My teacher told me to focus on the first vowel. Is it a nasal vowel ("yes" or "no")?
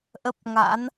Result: no